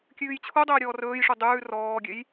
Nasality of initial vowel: oral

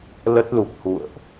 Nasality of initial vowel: oral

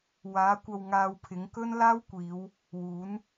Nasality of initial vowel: oral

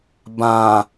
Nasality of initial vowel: nasal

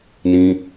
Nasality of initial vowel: nasal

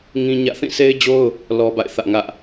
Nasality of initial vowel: nasal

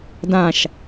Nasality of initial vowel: nasal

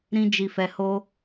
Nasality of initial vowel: nasal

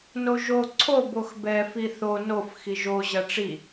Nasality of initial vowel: oral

